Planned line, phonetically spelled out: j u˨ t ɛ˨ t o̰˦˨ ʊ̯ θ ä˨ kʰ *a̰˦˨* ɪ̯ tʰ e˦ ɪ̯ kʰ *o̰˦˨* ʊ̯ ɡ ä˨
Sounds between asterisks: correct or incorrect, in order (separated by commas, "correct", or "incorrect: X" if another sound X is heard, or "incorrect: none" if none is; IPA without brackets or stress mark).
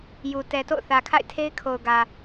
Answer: correct, incorrect: o˨